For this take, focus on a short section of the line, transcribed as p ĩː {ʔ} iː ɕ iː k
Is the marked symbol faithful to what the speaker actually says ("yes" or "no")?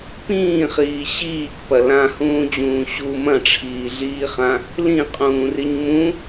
no